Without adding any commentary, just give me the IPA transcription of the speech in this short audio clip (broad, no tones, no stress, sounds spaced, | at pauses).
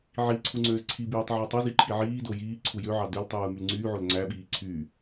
ʕ i ǀʰ u ŋ͡ǀ øː z ǀʰ i b yː tˤ ʕ ɯ tˤ o z i ǃʰ i ʕ iː d o j iː ǀʰ u j ø ʕ ɑ d ø l tˤ ɯː m y l ŋ͡ǀ yː ʕ o l ŋ͡ǀ æ ɓ iː ǀʰ yː